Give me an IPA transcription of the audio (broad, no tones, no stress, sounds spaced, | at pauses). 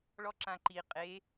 ɭ ɔ ǁ ã ǃ i qʼ e